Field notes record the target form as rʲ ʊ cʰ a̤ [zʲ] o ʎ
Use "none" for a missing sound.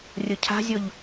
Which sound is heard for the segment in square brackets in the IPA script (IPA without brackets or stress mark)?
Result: zʲ